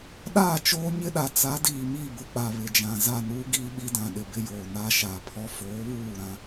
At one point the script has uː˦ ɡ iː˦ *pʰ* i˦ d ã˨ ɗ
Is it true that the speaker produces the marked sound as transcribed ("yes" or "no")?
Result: no